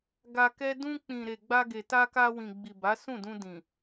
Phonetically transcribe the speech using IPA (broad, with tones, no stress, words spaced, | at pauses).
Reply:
ɡa˧kɛ˦ dũ˧k͡pĩ˨ɾe˨ ɡ͡ba˧ɡe˨ ta˧ka˧wĩ˨ɡ͡bi˨ ba˨˦sũ˦˨dũ˧dĩ˨